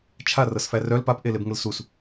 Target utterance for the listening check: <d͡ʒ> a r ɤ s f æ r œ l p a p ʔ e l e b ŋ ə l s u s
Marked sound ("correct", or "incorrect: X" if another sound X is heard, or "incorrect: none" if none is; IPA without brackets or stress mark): incorrect: t͡ʃʰ